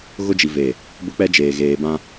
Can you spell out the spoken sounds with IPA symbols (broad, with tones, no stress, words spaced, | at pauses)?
ɣʊ˦d͡ʒi˨veː˨ | bʊ˦k͡pɛ˦d͡ʒeː˨ ɣeː˨bã˦